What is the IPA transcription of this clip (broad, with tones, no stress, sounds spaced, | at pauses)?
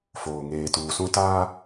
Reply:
f oː˨ ŋ eː˨ t uː˨ s ũ˦ t aː˦